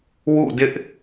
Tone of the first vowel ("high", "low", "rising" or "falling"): falling